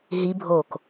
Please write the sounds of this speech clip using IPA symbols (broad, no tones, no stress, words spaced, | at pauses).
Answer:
ɦibʱoːk